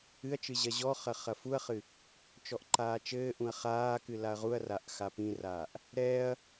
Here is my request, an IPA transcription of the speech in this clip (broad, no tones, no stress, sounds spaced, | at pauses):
ɨ ɐ̯ t͡ʃ ɨ ʑ ɐ ʑ ɔ χ ɐ χ ɐ f u ɐ̯ χ ɨ | t͡ʃ ɔ ʔ ǃ aː t͡ʃ ɘː ʔ ũ ɐ̯ χ aː k ɨ l a ɐ̯ ʁ u ɐ̯ r a ʔ x a p ĩ r aː ʔ | ɾ ɛː ɐ̯